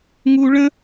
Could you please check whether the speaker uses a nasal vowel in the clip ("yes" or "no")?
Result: yes